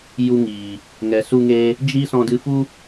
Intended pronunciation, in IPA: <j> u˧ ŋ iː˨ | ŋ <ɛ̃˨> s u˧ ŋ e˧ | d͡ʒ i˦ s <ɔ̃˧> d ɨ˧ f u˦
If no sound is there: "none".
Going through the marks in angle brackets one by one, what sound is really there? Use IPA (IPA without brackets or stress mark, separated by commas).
j, ɛ˨, ɔ̃˧